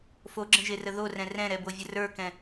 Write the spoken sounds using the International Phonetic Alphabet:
f o ɡ͡ǁ ə̃ ʒ e r ə ð o r ɛ̃ r ɛ̃ ɾ ɛ b o vʲ ə r ə˞ k ɛ̃

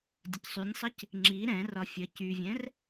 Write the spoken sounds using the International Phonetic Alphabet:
dʲ ə c sˤ y nʲ sˤ ə c | ŋ͡ǁ i ɾ ɛ̃ r ɒ fʲ ə c y vʲ ɛ̃ r

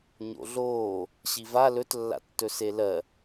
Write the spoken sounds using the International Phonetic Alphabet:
ɲ o̰ ɮ oː | ɕ i v a l ɵ t lː a̰ tː ɵ s e l ɜ

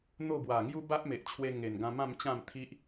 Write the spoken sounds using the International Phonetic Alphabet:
n̪ o˥˧ b w a˨˩ ŋ j u˦ b a˦ ʔ m e˨ ʔ t͡ɕʰ w e˧ ŋ e˨˩ n ɡ ã˧ m ã˥˧ m t͡ɕ ã˥˧ m t̪ʰ i˦ ʔ

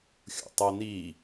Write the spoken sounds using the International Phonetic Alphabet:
xʲ ṵ tˤ o n i

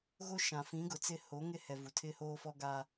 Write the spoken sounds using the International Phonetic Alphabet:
ɣ o˦ ʃ ã˨ f ĩ˨˦ ɡ ʊ˨ t͡s ɪ˦ h o˨˦ ŋ ɪ˦ h ɛ˨ v u˨ tʰ ɪ˦ h oː˦ f ɔ˦ ɡ a˦

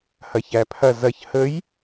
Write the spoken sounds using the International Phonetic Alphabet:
h ɐ ç æ pʰ ɐ z ɐ ç h ə j

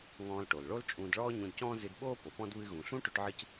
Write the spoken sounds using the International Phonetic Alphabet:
ŋ ɔ̃ː˧ l ʈ o˩ l ɭ o˥ l t͡ʃʼ ũː˧ d ɭ ɔː˥ ɲ ũ˧ d c ɔ̃ː˥ z ɨ˧ d ɓ oː˥ p o˩ p ɔ̃˥ d β ɨ˧ ɣ ũ˩ ɬ ũ˥ ʈ ʏ˧ ʈ ʕ ɨ˧ c

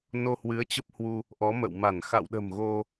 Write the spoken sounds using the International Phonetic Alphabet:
n o˧ h w ɨ˨˦ ə̯ t͡ɕ ə˦˥ p̚ h w u˧ | ʔ ɔ˨˦ m ə̰˧˨ w m a˧˩ n x a̰˧˨ w ɗ ə̤˨˩ m ɣ o˧

